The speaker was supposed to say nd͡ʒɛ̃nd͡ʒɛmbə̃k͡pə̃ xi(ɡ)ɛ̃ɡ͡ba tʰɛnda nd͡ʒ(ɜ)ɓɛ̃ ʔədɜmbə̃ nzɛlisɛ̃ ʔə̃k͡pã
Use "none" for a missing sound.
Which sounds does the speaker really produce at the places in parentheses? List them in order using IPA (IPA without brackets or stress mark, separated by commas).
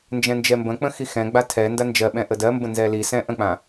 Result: x, ɜ